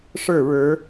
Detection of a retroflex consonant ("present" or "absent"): present